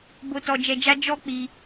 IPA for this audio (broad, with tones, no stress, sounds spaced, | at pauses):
b o˧ t ɔ˧ d͡ʒ ɛ˧ d͡ʒ a˦ d͡ʒ ɔ˦ k͡p i˧